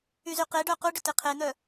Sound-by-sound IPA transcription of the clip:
y z y q e ɖ œ q u ɖ ʏ t e qʰ e n̪ œ

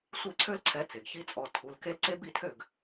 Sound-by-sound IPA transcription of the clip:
sʷ e˥˩ ǀʰ ø˦ l ǀʰ ɛ˨˦ t͡s e˩ ɡ ç i˦ t͡sʼ ɔ˩˧˩ tʰ u˩˧˩ l k e˦ l ǀ e˦ b i˥˩ tʰ ø˥˩ ɡ

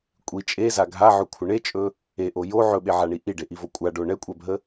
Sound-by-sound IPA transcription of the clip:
kʷʼ i t͡ʃʼ e z a ɡʱ a ʕ ɵ kʷʰ ə ɳ e t͡ʃʼ ɵ | e ʔ o j o ʕ ɵ ɓ e ʕ a ɳ i ʔ i ɖ e ʔ i v o kʷʼ a ɖ o ɳ ɛ kʷʼ ɛ bʱ ə

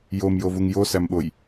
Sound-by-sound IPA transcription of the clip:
j o m j o v u ŋ j o s æ m ɓ o j

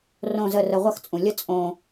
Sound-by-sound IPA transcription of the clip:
r õ˥˧ z ə˥˧ r ə˧ ʁʷ ɐ˥˧ x t͡sʼ ũ˨˩ lʲ ə˥˧ t͡sʼ õ˧

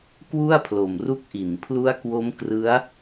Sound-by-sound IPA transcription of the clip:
k w u˥˩ a̯ pʰ l o˨˩ m r u˦˥ k̚ ʔ i˩˦ n pʰ l u˦˥ a̯ k w o˦˥ m k r ɯ˦˥ a̯

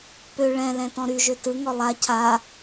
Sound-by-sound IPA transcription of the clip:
p ø ɭ ɛ̃ l ɛ̃ t ɔ̃ ɾ y ʒ ø t ɯ ŋ ɔ lˠ a cʰ a

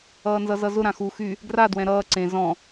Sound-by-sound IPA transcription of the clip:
ʌː n z ʌ z ʌ z ʊ ɾ ã x u x y | ɡ r a d w ɛ̃ ɾ ʌː ǀ ẽ z ɔ̃

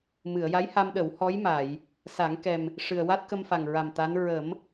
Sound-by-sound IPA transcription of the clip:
m ɨ˨˩˨ ə̯ j a˧˥ j h a˧ m ɗ ə˨˩˦ w h ɔ˧˥ j m a˨˩˨ j | s a˨˩˦ ŋ k ɛ˨˩ m | ʂ ɨ˨˩ ə̯ w a˦˥ t̚ k ə˧ m f a˨˩ ŋ ɹ a˨˩ m t̪ a˧˥ n ɹ ə˨˩˦ m

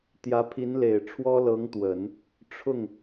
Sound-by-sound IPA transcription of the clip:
t̪ j ä˧˥ pʰ i˧˥ n l e˨˩ ɪ̯ ʈ͡ʂʰ w ɔ˥ l ɤ˧˥ ŋ t̪ w ə˨˩˦ n | ʈ͡ʂʰ ʊ˥˩ ŋ

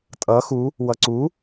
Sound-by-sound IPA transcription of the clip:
tʼ ʌ x u | w ʌ ǀ u

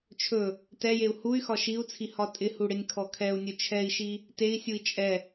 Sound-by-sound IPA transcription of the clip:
t͡ʃʰ ɵ | t ɛ j e u̯ h u y̯ x ɒ ʃ i u̯ t͡sʰ i h ɒ tʼ ɪ h u ɽ ɪ nʲ kʰ ɔ kʰ ɛ u̯ nʲ ɵ t͡ʃʰ ɛ i̯ ʃ i | t e i̯ sʲ u i̯ t͡ʃʼ ɛ

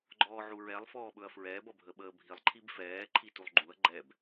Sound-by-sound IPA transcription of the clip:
ɡ͡ǃ ɔː ʕ u ɹ ɛ lˠ f ɔː ɓ ɵ ɐ̯ f ɹ ɛː b ʌ bʱ ə ɓ əː bʱ i lˠ ǃʰ i b f ɛː ǃʰ i t u lˠ ɡ͡ǃ u ɐ̯ ɡ͡ǃ ɛ b

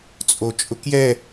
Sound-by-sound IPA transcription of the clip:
t͡sʼ o t͡ʃʼ ʊ k j ɛ

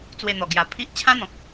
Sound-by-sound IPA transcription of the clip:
t͡s w e˧ n̪ ɔ˨˩ ɡ j a˨˩ pʰ i˦ ʔ t͡ɕʰ ã˦ n̪ ɔ̃˨ k̚

